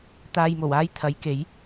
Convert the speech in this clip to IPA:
t̪aː˧jmo˨˩w aː˥jt̪ʰɐ˨˥jke˨˥j

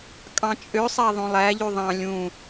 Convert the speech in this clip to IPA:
kʼɑ̃t͡ʃʼøsˤæ ðˤõlˠæʎy ðˤɑ̃ lʲũ

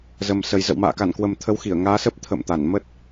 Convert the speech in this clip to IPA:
zə˨˩msə˨˩j zə̰˧˨wma̰ː˧˨ ka˧˩nkwə˨˩m t̪ʰə˨˦wxi˧˩ə̯ŋaː˨˦sə˦˥p̚ t̪ʰə̰˧˨mt̪a˧˩n mə˦˥t̚

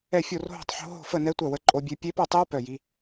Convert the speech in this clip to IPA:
ɛ˥˧fʲo˥˧r ɦo̤˥˧tˤħo̤˦˥ ɦo̤˥˧fə˥˧nɛ˦˥ tʷœ˥˧wə˦˥ǃʼo˦˥bʲø˦˥ pʲe˦˥pœ˥˧tˤi˦˥w pœ˥˧ji˦˥

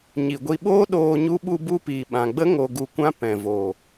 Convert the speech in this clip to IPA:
ɲi˨ɡʷi˧ɓoː˦ɗoː˧ ɲu˦ ɓu˧bu˧piː˨ ɓã˨ɡ͡bə˦ ŋo˧ɡu˧kʷã˦ pɛ̃˨ vo˨

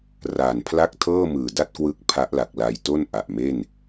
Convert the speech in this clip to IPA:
ra˨˩npʰla˥˩k̚ tʰɤː˥˩mɯː˨˩da˥˩t̚kwɯ˦˥k̚ pʰa˦˥ʔla˨˩k̚la˧jto˥˩n ʔa˨˩ʔme˥˩n

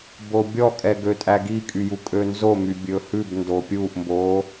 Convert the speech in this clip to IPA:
bobʲɔkʼɛ ɡøtʼæɡikʼy jukʼønzomy bʲɵhʉbndo pʲuʔmbo

